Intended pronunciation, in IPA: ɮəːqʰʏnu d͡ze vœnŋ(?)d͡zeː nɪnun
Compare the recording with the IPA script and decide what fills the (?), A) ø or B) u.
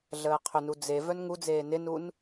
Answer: B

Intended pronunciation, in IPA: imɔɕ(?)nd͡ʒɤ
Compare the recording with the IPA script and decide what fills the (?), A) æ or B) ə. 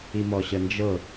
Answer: B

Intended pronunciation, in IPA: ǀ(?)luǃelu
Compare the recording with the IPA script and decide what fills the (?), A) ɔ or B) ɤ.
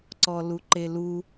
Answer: A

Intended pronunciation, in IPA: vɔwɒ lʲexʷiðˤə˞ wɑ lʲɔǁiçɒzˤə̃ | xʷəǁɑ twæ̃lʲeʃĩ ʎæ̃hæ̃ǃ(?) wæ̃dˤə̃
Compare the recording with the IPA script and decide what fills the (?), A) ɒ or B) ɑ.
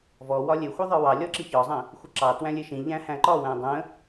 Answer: A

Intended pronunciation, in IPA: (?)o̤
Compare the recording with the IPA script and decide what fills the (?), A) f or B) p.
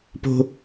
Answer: B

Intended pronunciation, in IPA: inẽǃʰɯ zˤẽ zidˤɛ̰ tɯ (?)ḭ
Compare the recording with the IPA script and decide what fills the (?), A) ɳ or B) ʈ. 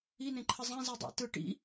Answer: B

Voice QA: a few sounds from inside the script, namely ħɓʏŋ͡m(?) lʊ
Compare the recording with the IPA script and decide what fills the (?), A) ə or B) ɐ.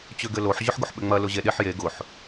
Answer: B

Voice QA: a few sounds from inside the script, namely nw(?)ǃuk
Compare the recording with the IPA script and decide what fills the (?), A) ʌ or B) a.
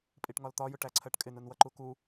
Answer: A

